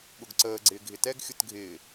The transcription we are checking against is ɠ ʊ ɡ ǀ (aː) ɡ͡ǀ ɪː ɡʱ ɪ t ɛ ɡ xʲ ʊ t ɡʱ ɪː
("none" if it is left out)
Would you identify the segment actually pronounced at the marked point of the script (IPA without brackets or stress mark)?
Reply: əː